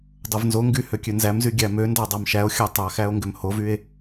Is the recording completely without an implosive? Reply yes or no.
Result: yes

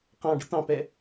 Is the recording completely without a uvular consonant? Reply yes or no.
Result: no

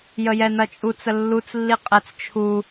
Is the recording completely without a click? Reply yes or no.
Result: yes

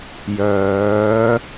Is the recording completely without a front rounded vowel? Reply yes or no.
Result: no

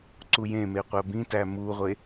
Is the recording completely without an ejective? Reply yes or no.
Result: yes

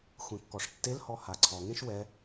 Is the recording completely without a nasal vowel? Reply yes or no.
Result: no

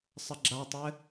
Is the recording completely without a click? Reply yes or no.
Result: no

